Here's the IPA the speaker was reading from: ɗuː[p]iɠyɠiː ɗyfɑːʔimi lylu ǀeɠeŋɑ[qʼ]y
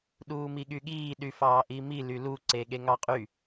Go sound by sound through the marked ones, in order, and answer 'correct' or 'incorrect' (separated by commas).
incorrect, correct